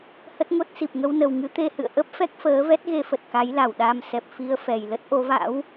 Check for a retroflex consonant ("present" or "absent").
absent